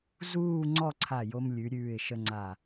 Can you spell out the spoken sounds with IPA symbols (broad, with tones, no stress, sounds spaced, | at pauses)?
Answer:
z uː˥˧ ŋ͡ǀ ɔ˥˧ ǀʰ a˧˩ j o˧ m lʲ ʉ˩˧ ɾʲ ʉː˧˩ ɪ̯ ʃ ə˧ ŋ͡ǀ a˧˩